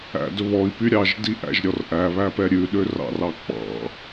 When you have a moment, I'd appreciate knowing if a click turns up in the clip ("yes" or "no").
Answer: no